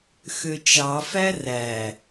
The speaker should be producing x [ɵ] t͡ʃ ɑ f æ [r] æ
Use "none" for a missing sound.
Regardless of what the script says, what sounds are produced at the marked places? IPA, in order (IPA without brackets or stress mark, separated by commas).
ø, r